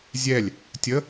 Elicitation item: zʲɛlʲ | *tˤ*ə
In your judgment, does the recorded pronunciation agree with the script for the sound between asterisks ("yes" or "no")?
no